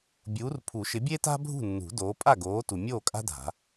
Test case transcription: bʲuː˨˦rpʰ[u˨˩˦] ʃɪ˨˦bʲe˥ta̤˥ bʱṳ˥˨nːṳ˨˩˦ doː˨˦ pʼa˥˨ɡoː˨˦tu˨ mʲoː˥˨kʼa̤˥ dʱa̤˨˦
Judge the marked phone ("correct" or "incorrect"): correct